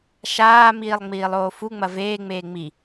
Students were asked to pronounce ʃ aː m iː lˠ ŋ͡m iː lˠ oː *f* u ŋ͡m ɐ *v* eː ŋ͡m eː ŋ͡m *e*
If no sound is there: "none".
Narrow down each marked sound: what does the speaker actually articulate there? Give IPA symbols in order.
f, v, i

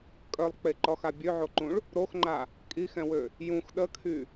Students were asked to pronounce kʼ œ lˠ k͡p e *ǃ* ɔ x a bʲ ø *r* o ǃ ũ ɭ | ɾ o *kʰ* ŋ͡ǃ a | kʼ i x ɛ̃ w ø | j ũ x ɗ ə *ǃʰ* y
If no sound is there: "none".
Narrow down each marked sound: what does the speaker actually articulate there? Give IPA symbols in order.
ǃ, ʕ, x, kʰ

